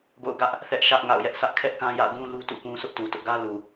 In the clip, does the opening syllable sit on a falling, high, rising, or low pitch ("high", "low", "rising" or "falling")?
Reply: falling